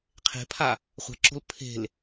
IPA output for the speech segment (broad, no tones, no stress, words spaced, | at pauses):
qʰe̤pʰa | χʷɛ̤ǁo̤l pʰe̤l